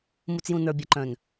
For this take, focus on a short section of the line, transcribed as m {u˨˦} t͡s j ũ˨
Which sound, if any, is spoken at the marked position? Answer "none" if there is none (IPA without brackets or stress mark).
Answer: u˨